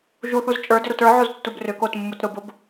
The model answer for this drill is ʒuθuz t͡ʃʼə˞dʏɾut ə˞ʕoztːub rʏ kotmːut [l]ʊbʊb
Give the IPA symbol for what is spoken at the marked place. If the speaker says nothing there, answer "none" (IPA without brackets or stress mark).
ɾ